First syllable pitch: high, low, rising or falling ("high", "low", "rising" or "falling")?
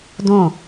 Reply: falling